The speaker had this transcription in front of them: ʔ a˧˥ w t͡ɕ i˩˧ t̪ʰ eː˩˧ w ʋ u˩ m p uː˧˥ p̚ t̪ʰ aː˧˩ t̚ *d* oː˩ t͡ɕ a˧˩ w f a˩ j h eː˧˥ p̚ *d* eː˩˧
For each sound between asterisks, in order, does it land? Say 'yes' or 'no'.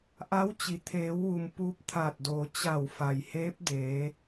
yes, yes

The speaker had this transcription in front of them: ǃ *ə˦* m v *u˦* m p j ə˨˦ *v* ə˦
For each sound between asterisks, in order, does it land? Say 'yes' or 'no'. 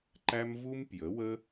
no, yes, no

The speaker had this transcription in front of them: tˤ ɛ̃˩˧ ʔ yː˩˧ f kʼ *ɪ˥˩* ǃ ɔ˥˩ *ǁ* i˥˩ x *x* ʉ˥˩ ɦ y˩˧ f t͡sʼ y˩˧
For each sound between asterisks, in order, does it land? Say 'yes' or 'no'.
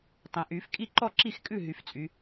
no, yes, no

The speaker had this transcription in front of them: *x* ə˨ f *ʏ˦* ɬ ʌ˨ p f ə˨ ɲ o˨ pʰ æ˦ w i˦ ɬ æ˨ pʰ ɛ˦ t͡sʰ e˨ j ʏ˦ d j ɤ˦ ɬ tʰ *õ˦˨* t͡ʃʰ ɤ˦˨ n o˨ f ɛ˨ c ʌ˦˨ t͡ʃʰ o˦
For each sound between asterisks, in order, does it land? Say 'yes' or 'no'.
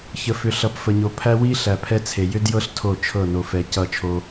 no, no, no

